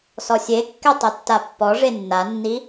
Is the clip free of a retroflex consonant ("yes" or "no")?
no